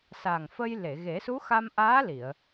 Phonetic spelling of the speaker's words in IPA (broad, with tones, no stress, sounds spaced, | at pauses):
s a˨˩ ŋ f ə˧ j l e˨˩˨ ɣ e˨˩˦ s u˧˥ x a˧ m ʔ aː˧˥ l i˨˩˨ ə̯